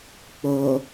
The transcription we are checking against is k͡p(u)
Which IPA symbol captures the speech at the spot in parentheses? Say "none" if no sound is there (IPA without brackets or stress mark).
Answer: o